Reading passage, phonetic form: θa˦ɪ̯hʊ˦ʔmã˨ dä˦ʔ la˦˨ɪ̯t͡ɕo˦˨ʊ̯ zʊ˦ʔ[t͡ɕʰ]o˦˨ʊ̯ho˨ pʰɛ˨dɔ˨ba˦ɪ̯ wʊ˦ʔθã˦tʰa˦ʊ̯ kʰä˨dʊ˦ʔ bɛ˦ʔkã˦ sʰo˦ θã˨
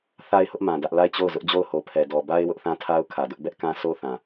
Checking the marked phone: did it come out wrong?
yes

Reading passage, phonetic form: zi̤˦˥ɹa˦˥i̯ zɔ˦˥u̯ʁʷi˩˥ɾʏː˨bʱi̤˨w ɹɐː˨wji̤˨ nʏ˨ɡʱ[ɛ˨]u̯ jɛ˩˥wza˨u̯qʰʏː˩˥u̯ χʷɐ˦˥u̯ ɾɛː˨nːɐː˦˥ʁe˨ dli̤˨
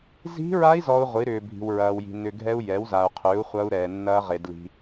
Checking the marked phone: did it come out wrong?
yes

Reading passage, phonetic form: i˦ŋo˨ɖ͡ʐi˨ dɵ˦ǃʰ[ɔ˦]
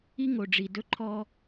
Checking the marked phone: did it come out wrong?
no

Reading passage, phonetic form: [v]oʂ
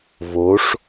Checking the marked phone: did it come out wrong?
no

